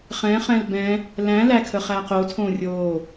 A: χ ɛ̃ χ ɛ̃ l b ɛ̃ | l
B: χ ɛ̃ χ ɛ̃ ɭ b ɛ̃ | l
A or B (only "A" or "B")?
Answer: A